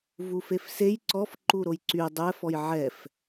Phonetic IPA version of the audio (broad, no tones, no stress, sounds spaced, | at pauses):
v u f e f s e j ǀ ɔ f ǃ u ɾ o j ǀ y dˤ ɛ f ɔ j ʕ ɛ f